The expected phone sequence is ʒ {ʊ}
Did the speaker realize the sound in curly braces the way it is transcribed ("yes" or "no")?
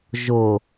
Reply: yes